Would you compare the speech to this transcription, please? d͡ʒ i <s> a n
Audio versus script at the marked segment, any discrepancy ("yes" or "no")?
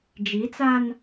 yes